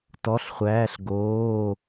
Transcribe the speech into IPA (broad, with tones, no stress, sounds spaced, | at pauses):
t ɔ˧˥˧ ɬ χʷ æː˧˥˧ ɬ ɡ oː˧˥˧